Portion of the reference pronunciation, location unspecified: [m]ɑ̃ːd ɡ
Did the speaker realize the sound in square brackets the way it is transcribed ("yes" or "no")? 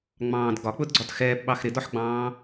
no